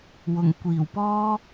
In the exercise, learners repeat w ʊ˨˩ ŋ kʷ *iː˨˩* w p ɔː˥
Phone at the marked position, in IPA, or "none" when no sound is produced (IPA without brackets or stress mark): iː˨˩